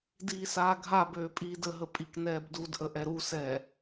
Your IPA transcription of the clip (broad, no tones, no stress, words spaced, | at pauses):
diːsaːɡʱabøː pʼiːdəɦə pʼiknɛːbdudʔə ʔɛɾusɛː